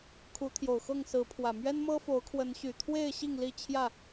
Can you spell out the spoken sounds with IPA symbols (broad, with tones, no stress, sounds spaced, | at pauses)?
kʰ u˨˦ t̪ʰ j o˨˩ ʊ̯ x ɤ˥˨ ŋ s ɹ̩˨˦ pʰ w ä˨˩ m ɥ ɛ˦ n m ɤ˦ f o˨˦ ʊ̯ kʰ w ə˨˦ n ɕ y˨˩ t̪ʰ w e˥˨ ɪ̯ ɕ i˥˨ ŋ l i˥˨ t͡ɕʰ j ä˥˨